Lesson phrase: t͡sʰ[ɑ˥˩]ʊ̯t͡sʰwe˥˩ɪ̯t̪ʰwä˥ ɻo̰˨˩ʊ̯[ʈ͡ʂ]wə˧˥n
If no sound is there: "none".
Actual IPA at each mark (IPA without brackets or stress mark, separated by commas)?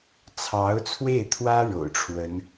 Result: ɑ˧˥, ʈ͡ʂʰ